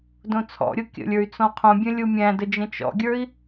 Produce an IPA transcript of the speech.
d õ t͡sʰ ɔ̰ ɾʲ o kʲ ə̰ lʲ ə˞ y̯ t͡s ɔ̃ qʰ õ bʲ ə̃ lʲ u mʲ æ̃ d ə d͡ʒ ə̃ t͡ʃ ɔ̰ ɡʲ ə˞ i̯

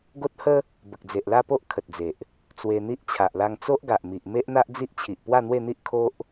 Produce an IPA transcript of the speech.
ɡ o˦ t̚ h ə˦ | b ə˨ k̚ d͡z e˨ ʔ l a˥˧ p o˦ ʔ kʰ ə˨ t̚ d͡z e˨ ʔ | t͡s w e˧ n̪ i˦ ʔ t͡ɕʰ a˨ ʔ l a˧ ŋ t͡s o˦ ʔ ɡ a˨ ʔ m i˨ ʔ m e˦ ʔ n̪ a˦ ʔ d͡z i˦ ʔ t͡ɕʰ i˨ ʔ p w a˥˧ n̪ w e˥˧ n̪ i˦ ʔ kʰ o˦ ʔ

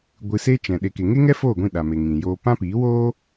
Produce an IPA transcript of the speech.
ɡʷ ɨ˧ s e˦ t͡ʃ ɛ̃˨ ɗ e˨ k e˨ ŋ e˦ ŋ ɛ˦ f oː˦˨ ɡʷ ĩ˦˨ ɗ a˨ m e˨ ŋ ĩ˨ j oː˧ p ã˦ p iː˨˦ w oː˦

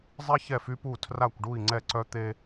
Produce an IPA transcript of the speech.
zˤ i˥ ç ɛ˥˧ f y˥ p u˥˧ tʰ r a˥˧ kʷ ɖ u˥˧ i̯ ŋ͡ǀ ɛ˥˧ ǀ œ˥ t̪ e˥

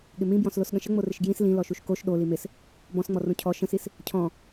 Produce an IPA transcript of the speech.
ɠ ɪ m ĩ b j ɔ̃ s l o s ɠ ə̃ ʃ ə ŋ͡m o r ɪ ʃ ɡ j ĩ s l ĩ l ɔ ʃ u ʃ k o ʃ ɗ o l i m ɪ s | b ɔ̃ s ŋ͡m ɔ r ũ cʰ ɔ ʃ ə̃ s i s | cʰ ɔ̃

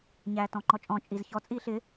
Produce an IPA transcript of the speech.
ɲ æː t ɔ̃ ŋ͡ǃ ɔ t͡ʃʼ ɔ̃ t͡ʃʼ i z ç ɔ t͡sʼ iː ɬ ɪ

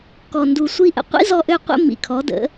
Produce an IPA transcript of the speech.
k ɔ˨ n d u˨ sʷ i˦ ʔ ə̰˨ qʷ ḭ˦ z ɔ˧ ʔ ø˧ qʷ ə̰˦ m ḭ˨ kʰ ɔ˨˦ d ə̰˨˦

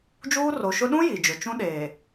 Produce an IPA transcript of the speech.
d͡ʒ uː˦ r o˨ ʃ ʊ˦ ɗ ũ˦ j i˨ d͡ʒ ʊ˨ t͡ʃ ũ˦ ɗ eː˨

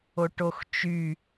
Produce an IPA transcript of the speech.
o ʈ o x t͡ʃ y

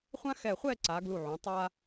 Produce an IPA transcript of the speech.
χʷ ã˥ x ɛ˧˩ χʷ ɛ˥˧ ǀ a˩˧ ɡ l u˧˩ ʕ ũ˩˧ tˤ a˧

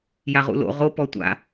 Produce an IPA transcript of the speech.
j a ʁ ṵ l o̰ ʁ o p ɔ tʷ a̰

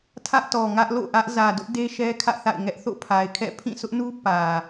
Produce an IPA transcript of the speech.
tʰ ä˦ ʔ t ɔ˨ ŋ ä˦ ʔ l o̰˦˨ ʔ ä˦ ʔ z ä˨ d ʊ˦ ʔ d e˦ ʃ ɛ˦ kʰ ä̰˦˨ θ a̰˦˨ ɪ̯ ŋ ɛ˦ ʔ θ o̰˦˨ pʰ a˨ ɪ̯ kʰ ɛ̰˦˨ pʰ ĩ˦˨ s ʊ˦ ʔ n u˦ p ä˨

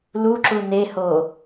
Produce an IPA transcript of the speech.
l u ǁ u n e h o

